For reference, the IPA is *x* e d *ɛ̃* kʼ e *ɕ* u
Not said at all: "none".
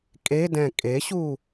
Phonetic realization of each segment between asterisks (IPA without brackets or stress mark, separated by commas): kʼ, ɛ̃, ɕ